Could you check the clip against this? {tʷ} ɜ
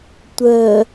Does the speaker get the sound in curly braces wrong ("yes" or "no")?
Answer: no